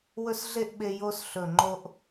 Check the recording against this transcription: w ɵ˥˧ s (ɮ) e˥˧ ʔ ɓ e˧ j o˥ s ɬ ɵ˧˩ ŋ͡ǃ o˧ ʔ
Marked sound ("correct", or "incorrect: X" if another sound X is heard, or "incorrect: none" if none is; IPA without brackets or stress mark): correct